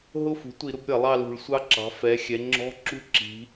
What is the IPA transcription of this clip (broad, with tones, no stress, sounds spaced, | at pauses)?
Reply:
ɦ ʊ˥˨ f ṳ˩˥ tʷ i˧˩˧ ɾ ʊ˦˥ b ɾʲ ʌ˧˩˧ lˠ ɑ˥˨ l ṳ˧˩˧ ɭ sʷ ɑ˦˥ ǁ ɑ̤˩˥ f ɛ˩˥ xʲ ɛ˩˧ ŋ͡ǁ ɔ̤˧˥˧ ǁ ṳ˥˨ ǁ i̤˩˧